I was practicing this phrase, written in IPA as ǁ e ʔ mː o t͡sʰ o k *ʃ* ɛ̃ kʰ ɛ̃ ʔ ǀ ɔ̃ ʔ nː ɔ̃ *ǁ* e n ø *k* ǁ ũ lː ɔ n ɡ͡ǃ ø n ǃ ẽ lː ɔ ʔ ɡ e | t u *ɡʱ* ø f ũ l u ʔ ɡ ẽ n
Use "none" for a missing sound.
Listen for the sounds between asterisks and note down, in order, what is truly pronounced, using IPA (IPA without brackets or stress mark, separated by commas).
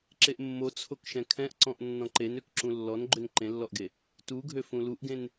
ʃ, ǃ, k, ɡʱ